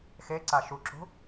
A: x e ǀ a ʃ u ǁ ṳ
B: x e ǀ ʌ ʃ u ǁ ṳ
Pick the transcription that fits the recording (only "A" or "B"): A